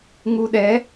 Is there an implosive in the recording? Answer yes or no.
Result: yes